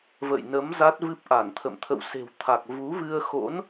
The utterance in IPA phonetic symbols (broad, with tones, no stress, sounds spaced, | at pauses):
v ə̰˧˨ j n ə˨˦ m z a˦˥ t̚ v ɨ˦˥ p̚ ʔ a˧˩ n t̪ʰ ə̰˧˨ m t̪ʰ ə̰˧˨ w s e̤˨˩ w t̪ʰ a˨˩ k̚ v u˨˦ v ɨ˧ ə̯ x o̰˧˥ n